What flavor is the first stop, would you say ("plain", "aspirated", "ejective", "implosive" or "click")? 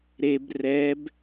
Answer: plain